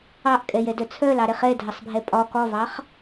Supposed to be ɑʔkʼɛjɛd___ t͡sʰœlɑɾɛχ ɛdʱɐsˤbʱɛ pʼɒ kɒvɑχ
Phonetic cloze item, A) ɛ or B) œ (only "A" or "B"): B